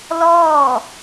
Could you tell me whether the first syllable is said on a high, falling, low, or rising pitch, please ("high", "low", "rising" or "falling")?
falling